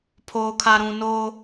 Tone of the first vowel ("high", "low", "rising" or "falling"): low